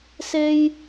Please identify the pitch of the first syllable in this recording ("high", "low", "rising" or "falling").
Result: high